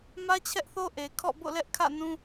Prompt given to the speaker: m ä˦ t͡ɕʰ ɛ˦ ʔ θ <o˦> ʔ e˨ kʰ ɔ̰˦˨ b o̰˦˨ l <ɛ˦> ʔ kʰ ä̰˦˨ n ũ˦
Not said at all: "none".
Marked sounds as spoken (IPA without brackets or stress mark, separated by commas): o˦, ɛ˦